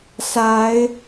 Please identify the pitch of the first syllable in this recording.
rising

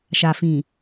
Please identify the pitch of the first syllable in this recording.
low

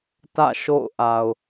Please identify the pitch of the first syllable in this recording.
falling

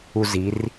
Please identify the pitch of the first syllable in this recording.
high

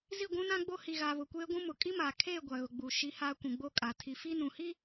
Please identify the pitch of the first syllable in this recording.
falling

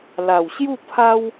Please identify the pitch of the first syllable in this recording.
low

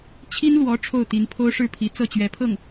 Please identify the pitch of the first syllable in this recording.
high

